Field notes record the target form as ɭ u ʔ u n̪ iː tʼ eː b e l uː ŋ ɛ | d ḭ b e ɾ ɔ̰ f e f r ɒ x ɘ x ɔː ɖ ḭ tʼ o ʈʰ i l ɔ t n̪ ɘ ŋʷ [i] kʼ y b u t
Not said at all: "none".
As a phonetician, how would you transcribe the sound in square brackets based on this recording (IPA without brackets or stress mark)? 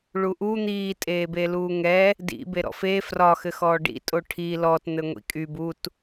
ḭ